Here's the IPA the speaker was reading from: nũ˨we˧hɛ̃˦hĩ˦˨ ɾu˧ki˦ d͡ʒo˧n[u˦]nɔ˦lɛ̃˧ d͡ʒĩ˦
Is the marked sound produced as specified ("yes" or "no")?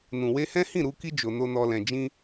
no